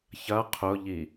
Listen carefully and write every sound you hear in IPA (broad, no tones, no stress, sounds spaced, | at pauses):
ç ɐ qʰ ʊ ʎ i